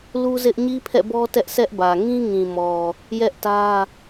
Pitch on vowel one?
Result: high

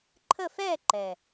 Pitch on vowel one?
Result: falling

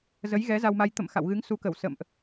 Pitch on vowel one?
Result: rising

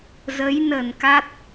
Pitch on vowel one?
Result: rising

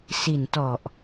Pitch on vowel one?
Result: low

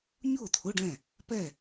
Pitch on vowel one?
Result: falling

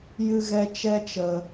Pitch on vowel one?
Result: high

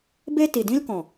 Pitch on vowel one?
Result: high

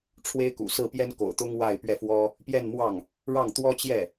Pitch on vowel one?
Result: high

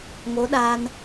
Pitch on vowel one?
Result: rising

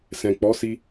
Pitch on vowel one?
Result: low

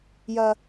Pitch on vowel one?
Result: high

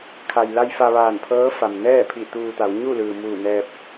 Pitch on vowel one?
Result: low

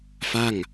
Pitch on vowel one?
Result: falling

